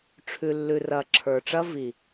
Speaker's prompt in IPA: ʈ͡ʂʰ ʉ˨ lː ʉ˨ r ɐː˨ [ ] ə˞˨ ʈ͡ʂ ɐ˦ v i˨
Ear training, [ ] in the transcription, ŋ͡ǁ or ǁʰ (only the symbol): ǁʰ